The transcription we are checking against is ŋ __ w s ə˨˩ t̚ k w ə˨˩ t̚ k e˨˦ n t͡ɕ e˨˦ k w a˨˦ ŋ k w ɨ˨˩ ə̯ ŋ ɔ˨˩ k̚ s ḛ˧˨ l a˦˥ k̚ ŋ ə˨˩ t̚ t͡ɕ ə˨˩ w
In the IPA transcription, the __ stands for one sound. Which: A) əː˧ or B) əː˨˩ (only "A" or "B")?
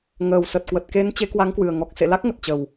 B